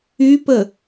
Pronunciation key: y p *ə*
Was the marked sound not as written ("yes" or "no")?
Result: no